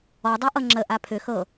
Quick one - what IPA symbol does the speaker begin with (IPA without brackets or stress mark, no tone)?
ɔ